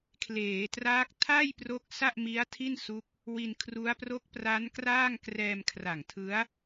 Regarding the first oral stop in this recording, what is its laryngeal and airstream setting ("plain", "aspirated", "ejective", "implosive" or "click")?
aspirated